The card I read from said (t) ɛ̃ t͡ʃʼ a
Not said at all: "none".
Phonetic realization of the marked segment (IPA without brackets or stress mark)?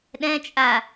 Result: ɗ